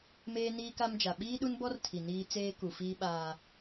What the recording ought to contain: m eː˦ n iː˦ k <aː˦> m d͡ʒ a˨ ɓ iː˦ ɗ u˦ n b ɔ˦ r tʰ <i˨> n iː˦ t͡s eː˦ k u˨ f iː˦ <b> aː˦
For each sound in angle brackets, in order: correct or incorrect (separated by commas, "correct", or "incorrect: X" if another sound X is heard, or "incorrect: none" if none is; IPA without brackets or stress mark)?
incorrect: a˦, correct, incorrect: ɓ